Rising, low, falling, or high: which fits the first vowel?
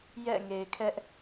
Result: falling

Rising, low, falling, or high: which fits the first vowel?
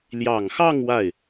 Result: low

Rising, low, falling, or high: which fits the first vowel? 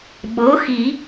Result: rising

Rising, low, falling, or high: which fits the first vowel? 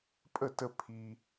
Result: falling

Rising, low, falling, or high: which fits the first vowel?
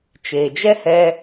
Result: low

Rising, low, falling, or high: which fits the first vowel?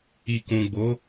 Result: low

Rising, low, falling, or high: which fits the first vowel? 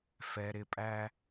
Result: low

